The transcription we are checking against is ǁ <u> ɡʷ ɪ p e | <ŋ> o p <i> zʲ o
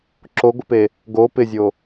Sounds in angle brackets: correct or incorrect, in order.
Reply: incorrect, incorrect, incorrect

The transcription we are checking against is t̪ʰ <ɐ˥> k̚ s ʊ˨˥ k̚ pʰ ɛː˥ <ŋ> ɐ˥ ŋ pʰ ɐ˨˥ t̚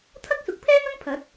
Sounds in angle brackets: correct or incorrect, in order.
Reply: correct, correct

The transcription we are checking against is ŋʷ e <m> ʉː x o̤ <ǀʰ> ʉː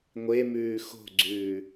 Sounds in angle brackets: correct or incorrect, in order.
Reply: correct, incorrect

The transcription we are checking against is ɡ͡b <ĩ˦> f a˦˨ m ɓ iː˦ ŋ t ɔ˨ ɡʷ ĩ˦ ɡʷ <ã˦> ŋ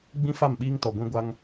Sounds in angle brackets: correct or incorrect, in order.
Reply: correct, incorrect

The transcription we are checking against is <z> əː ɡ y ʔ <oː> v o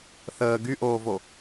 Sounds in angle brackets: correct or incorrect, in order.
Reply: incorrect, correct

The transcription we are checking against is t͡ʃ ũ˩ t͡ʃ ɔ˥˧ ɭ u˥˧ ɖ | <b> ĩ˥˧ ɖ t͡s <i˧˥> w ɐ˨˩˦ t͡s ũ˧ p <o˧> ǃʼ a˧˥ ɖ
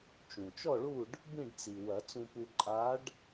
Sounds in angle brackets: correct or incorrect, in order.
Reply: correct, incorrect, incorrect

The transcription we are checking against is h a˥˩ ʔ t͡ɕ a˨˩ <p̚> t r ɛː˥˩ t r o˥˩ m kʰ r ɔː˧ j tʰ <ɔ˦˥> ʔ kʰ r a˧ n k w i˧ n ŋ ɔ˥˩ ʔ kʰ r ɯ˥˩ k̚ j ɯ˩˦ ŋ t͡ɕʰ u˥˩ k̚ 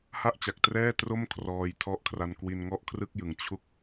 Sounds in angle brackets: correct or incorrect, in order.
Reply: incorrect, correct

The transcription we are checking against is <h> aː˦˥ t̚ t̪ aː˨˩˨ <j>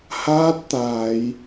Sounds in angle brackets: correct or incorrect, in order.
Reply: correct, correct

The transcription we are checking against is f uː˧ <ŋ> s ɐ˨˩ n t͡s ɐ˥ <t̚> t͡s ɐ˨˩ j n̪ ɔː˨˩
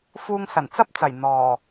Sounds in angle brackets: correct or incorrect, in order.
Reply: correct, incorrect

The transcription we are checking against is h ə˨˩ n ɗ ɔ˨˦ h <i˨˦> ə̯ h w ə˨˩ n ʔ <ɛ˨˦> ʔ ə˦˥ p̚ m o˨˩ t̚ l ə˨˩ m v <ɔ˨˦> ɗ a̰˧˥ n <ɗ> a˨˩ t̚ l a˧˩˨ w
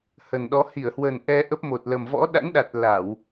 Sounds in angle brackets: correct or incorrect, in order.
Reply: incorrect, incorrect, incorrect, correct

